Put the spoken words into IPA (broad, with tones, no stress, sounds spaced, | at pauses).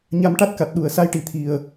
ɲ a˧ m ʈ a˦˥ t̚ k a˨˩ t̚ ɗ u˨˩ ə̯ s a˧˥ j ʈ i˨˩˨ t̪ʰ i˨˩ ə̯